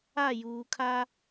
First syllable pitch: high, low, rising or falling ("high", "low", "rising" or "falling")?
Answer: falling